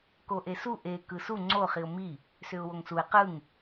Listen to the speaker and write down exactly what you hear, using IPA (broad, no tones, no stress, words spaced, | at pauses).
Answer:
koʔesu ʔe kɯsu ŋ͡ǀo χiʊ̯mi | sʏʊ̯woŋsuɪ̯ qɯŋ